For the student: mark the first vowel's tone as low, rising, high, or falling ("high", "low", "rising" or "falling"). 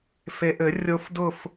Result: low